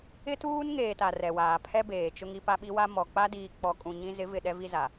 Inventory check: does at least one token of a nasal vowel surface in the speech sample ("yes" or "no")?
yes